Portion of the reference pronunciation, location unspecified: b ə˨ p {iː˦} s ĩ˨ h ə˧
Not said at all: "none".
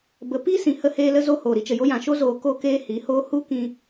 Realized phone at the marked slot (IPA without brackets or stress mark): iː˦